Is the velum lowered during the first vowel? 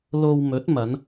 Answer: no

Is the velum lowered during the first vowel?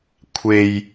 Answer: no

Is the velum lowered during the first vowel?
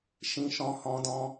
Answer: yes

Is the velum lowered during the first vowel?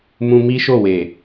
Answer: yes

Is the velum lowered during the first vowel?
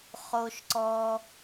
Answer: no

